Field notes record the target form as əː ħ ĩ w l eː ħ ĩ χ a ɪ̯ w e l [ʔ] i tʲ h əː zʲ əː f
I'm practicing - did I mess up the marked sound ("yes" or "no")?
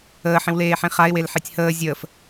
yes